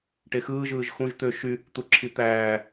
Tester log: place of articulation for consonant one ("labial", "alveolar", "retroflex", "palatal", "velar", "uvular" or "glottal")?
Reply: retroflex